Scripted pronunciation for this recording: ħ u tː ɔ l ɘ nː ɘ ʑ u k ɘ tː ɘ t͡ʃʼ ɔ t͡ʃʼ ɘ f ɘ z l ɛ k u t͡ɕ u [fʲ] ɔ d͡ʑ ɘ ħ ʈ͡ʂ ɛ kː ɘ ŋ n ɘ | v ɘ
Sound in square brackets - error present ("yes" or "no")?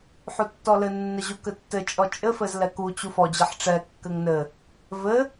yes